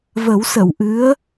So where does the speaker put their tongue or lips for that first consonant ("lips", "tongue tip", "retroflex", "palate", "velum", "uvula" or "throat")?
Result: lips